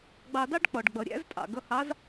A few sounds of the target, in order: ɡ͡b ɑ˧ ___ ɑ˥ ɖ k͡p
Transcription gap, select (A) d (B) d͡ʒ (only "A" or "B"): A